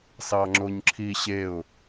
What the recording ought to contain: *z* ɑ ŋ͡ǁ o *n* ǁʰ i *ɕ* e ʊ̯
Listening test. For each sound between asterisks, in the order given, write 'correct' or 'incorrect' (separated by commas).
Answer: incorrect, incorrect, correct